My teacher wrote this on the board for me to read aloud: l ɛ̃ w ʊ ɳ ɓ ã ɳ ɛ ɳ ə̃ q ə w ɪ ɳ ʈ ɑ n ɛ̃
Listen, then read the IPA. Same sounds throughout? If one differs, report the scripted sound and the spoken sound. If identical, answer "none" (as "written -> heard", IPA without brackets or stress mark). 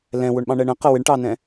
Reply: ã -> ɑ̃